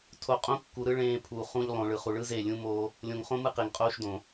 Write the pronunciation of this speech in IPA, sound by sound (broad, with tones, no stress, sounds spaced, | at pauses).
tʰ o˨ qʼ õ˦ kː u˨ ɾ ɯ˦ ɭ ẽː˦ pʰ u˨ χ ũ˦ ʎ lˠ õ˨ ɭ ɯ˨ χ u˨ ɭ ɯ˦ z e˦˨ lʲ ũ˦ m oː˦ | lʲ õ˨ ŋ χ õ˦ m ɯ˦ q e˨ ŋ qʼ oː˦ ʃ d õ˨